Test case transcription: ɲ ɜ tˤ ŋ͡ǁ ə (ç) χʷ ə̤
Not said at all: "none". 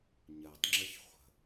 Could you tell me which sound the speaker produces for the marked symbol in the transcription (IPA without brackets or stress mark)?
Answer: ç